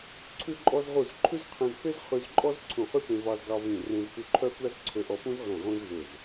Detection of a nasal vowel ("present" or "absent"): present